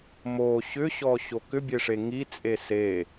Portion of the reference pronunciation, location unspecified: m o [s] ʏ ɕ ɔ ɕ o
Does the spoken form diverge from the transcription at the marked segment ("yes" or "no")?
yes